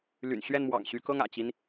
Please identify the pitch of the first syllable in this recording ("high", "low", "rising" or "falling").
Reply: low